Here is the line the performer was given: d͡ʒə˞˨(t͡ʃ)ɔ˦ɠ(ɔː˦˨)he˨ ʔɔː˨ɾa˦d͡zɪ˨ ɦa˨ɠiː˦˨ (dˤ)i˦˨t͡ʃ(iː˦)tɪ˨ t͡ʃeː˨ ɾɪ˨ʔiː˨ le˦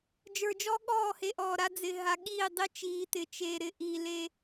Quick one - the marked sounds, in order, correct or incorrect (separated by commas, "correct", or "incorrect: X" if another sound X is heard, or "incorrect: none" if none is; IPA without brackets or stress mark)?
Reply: incorrect: d͡ʒ, correct, correct, incorrect: iː˨